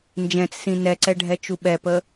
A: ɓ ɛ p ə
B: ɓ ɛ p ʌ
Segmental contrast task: A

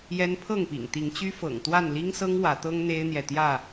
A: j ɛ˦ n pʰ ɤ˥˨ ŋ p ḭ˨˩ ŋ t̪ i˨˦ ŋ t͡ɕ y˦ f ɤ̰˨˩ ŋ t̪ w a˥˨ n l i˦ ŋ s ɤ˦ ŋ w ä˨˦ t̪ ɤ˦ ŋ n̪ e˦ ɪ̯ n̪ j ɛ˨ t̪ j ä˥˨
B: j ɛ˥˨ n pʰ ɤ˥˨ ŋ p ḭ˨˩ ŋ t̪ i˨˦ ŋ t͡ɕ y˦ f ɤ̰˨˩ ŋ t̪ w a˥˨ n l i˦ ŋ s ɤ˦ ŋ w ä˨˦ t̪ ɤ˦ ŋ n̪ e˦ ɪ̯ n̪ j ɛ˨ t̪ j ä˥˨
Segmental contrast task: A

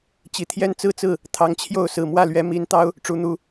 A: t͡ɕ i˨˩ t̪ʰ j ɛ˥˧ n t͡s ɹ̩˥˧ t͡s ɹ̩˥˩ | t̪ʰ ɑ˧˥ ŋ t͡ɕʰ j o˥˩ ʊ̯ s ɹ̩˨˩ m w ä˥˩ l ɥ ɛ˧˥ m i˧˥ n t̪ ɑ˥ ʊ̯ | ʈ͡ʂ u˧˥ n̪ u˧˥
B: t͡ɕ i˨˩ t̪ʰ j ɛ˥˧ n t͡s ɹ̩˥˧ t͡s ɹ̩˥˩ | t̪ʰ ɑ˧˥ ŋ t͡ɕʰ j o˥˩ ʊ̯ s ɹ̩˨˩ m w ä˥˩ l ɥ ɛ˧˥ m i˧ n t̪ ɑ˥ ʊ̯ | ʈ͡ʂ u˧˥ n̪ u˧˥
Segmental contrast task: A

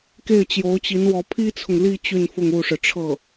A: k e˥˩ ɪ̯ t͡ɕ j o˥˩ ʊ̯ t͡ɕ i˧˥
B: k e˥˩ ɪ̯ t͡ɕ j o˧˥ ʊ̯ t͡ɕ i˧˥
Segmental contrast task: B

